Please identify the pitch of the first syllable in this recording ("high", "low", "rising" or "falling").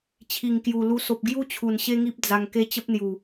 low